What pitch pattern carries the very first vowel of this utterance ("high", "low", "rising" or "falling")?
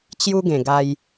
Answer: high